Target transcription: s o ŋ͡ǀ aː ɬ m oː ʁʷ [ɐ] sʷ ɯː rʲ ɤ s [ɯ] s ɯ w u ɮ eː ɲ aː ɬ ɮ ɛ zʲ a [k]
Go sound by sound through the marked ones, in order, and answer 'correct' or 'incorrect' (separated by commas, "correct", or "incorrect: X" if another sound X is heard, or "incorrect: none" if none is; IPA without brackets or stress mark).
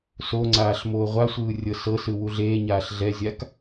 incorrect: a, incorrect: ɤ, correct